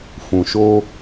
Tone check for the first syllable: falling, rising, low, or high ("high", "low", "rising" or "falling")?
low